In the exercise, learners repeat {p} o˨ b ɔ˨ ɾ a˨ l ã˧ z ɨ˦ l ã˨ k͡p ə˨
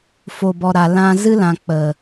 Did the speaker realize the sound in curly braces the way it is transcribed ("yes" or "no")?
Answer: no